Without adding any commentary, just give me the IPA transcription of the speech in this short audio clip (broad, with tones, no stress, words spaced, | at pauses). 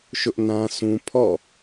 ʃʊ˦ʔnã˦ sʰũ˦ pʰɔ̰˦˨